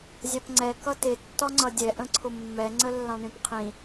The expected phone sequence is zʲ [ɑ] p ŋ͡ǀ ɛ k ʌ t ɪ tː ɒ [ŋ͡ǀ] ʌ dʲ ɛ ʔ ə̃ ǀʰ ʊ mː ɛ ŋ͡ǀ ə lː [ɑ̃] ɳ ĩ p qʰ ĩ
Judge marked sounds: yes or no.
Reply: yes, yes, yes

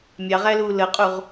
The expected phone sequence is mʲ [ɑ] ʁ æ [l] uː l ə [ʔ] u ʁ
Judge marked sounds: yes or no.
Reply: yes, yes, no

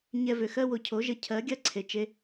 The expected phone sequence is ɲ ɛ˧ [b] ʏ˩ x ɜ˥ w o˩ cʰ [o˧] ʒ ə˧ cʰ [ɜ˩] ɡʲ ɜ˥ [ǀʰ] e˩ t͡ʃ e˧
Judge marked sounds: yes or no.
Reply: no, no, no, yes

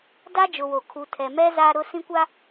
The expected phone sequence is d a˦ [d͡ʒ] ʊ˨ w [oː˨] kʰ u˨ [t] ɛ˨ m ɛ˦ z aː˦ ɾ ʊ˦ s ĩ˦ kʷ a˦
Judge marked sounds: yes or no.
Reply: yes, no, no

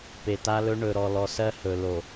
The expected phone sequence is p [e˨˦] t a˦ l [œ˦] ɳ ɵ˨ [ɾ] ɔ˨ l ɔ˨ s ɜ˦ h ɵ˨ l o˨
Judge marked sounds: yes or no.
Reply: no, no, yes

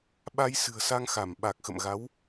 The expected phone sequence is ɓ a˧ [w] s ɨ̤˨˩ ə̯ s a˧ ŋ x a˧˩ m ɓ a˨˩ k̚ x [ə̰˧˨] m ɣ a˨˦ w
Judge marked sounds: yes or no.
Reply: no, yes

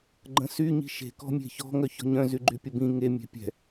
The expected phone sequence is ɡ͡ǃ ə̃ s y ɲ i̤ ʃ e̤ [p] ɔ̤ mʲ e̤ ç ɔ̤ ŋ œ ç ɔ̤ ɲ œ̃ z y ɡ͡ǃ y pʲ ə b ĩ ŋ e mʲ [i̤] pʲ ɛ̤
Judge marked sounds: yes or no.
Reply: no, no

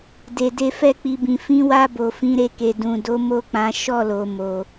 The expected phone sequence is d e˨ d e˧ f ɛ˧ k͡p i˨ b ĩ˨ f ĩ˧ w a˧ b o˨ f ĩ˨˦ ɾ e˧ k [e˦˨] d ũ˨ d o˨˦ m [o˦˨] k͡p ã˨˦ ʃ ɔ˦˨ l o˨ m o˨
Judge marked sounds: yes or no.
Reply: no, yes

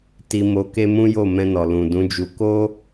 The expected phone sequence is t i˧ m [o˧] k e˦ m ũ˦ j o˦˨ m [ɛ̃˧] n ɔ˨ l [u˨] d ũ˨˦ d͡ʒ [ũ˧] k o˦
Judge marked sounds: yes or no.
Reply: yes, yes, no, no

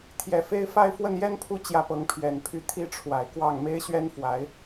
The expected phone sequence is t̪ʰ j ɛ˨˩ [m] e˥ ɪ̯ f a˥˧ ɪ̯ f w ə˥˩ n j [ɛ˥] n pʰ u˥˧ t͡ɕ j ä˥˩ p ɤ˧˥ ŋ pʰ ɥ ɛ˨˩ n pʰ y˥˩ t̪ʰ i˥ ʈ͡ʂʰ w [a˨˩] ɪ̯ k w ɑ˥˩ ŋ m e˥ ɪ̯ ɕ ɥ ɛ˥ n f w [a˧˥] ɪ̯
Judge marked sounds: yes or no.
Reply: no, yes, yes, yes

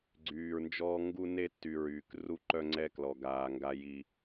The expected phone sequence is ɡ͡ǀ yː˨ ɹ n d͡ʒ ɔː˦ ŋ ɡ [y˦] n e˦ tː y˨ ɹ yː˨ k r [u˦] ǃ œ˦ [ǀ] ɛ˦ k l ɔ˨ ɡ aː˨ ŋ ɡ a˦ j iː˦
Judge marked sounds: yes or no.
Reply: no, yes, no

